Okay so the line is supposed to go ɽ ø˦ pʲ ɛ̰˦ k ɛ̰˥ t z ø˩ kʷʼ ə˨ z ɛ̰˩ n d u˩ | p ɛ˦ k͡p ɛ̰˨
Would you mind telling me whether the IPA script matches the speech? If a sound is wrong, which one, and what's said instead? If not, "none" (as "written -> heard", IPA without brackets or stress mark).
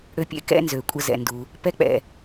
t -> n